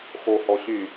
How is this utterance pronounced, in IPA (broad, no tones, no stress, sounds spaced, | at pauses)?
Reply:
x o h ɔ ɕ y